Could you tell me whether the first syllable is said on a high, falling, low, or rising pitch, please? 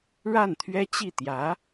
falling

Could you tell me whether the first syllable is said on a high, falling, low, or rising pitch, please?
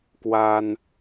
high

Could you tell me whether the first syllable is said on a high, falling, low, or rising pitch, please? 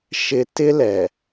high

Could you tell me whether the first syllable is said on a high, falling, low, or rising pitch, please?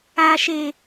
low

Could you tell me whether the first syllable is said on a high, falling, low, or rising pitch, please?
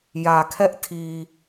low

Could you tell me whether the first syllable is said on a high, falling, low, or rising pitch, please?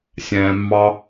low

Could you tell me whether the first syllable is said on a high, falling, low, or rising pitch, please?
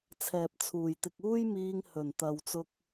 low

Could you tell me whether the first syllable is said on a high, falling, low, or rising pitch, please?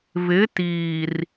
rising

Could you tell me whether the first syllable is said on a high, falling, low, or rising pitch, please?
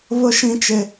high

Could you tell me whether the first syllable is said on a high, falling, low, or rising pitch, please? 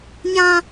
high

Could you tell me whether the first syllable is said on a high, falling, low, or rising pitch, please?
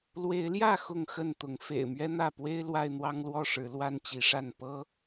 rising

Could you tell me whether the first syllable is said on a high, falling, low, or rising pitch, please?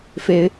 rising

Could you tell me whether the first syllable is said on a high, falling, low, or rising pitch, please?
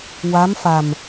rising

